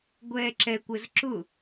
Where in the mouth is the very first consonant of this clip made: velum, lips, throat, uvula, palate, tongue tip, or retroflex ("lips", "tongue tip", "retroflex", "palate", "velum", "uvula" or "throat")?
velum